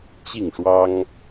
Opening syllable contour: falling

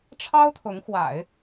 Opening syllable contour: high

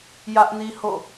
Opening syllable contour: high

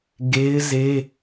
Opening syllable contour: high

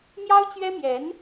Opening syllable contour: high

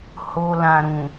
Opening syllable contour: low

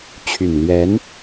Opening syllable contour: low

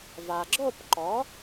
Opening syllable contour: low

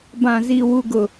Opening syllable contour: low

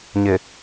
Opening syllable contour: low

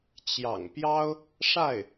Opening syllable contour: low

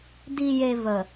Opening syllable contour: low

